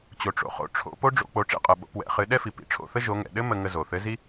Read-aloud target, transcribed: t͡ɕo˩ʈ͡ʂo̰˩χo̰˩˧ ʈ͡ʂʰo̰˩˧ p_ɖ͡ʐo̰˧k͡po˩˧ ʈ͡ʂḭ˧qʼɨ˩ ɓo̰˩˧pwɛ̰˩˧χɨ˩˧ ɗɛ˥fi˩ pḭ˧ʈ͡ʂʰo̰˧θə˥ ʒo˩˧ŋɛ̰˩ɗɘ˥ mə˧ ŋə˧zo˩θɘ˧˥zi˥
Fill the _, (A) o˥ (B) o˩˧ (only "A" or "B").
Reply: A